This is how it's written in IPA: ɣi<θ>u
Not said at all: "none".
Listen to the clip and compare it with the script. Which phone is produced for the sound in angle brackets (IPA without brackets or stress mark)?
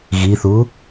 θ